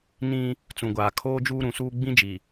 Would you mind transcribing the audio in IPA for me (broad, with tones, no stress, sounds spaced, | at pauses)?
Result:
n ĩ˦ | t͡s ũ˨ ɡʷ aː˨ kʰ oː˦ d͡ʒ uː˦ ɾ ũ˨ s uː˦ ɡ͡b ĩ˦ d͡ʒ i˨